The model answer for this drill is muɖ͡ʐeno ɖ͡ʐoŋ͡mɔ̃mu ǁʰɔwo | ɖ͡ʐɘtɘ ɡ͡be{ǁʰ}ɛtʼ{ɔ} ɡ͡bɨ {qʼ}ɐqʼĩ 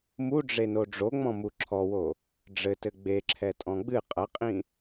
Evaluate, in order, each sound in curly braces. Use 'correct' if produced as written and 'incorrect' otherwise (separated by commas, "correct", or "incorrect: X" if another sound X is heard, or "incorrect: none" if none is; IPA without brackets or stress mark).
correct, incorrect: ɔ̃, correct